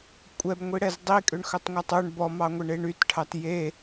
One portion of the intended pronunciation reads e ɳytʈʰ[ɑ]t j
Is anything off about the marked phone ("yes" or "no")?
no